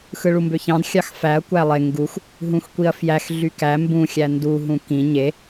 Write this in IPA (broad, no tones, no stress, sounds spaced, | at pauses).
x ɯ ɭ u m b ø ç ɑ̃ d xʲ ɑ x f æ ɐ̯ kʷ æ lˠ e ŋ ɡ u x | ɦ ũ x kʷ i ɐ̯ f j æ x ɮ y k æ m b ũ xʲ æ n d u ɦ ũ k ĩ ɲ e